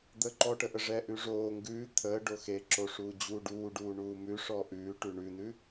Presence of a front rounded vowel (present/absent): absent